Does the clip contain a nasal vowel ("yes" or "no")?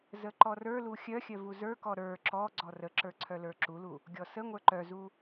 no